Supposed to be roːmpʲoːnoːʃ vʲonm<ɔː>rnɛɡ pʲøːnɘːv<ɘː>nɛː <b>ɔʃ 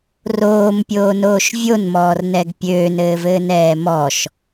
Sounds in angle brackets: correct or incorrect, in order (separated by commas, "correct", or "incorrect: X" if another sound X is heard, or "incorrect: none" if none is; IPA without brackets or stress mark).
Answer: correct, correct, incorrect: m